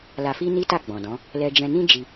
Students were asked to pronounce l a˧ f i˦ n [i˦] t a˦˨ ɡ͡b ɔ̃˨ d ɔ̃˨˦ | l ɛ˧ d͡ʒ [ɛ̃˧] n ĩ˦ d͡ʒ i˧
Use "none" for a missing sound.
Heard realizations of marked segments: i˦, ɛ̃˧

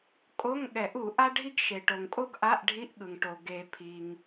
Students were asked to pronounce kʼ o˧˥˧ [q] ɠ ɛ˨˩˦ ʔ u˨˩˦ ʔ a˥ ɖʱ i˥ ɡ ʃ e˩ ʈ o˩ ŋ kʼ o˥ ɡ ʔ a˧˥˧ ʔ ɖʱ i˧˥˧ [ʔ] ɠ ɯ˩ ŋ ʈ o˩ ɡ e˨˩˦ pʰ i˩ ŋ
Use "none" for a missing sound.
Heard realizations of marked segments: ŋ, ʔ

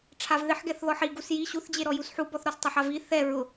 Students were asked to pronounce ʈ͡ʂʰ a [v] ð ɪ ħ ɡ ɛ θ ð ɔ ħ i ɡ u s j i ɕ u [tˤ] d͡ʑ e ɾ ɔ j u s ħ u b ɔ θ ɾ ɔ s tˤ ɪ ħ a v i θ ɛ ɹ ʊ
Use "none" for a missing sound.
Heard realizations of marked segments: v, θ

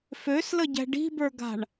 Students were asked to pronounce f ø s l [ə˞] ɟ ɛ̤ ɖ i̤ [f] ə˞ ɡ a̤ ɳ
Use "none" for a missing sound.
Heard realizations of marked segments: ə, b

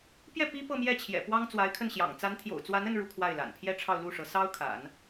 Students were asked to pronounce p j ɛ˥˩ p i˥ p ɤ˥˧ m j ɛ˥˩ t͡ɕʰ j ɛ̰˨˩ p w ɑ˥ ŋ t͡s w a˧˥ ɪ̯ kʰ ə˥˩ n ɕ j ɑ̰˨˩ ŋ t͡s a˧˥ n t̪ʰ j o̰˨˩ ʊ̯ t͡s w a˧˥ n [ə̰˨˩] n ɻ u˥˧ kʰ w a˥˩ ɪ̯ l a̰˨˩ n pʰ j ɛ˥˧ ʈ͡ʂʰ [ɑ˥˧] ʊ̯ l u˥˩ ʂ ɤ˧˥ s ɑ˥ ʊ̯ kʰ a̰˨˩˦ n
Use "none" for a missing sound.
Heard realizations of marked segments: ə˥˧, ɑ˥˧

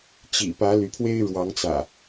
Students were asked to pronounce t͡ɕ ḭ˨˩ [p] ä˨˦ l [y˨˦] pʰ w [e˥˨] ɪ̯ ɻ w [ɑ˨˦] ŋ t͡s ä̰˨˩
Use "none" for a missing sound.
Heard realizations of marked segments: p, y˨˦, e˦, ɑ˨˦

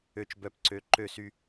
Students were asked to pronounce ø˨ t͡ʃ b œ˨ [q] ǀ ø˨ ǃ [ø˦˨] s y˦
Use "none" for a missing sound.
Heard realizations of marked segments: p, ø˦˨

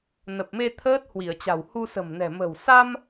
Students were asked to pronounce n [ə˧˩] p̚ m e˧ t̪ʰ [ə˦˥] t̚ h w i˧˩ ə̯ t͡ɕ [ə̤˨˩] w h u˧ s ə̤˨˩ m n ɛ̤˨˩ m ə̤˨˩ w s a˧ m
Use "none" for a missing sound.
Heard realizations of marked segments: ə˨˩, əː˦˥, a̤˨˩

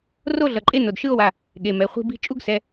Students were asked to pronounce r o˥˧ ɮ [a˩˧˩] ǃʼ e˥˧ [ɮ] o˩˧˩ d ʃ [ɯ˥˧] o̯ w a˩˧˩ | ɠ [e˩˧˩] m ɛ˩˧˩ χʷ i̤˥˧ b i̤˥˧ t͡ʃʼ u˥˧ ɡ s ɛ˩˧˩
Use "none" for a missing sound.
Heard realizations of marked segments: ʌ˩˧˩, n, ɯ˥˧, e˩˧˩

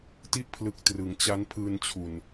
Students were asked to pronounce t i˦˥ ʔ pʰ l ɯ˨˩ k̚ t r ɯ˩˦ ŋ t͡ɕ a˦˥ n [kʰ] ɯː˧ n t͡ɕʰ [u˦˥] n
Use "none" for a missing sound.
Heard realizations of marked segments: pʰ, u˨˩

